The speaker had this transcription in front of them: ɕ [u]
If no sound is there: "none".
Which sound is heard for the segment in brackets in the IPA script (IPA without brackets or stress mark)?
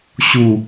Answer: u